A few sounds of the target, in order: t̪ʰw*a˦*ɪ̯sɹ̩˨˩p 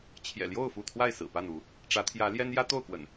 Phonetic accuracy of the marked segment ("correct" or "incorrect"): incorrect